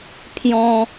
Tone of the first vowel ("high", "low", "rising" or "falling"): high